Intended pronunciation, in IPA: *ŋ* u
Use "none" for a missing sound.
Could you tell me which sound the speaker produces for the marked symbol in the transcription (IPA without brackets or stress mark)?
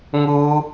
ŋ